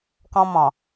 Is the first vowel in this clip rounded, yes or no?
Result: yes